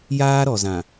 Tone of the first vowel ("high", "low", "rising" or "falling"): high